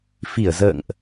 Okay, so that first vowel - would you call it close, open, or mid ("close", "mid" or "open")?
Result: close